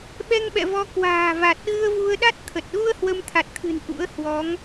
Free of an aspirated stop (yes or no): no